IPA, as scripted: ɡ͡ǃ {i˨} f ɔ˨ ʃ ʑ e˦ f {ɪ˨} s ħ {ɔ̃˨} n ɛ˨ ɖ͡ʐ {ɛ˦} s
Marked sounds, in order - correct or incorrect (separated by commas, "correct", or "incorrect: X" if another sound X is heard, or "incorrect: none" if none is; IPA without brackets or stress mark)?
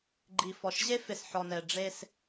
correct, correct, incorrect: ɔ˨, incorrect: e˦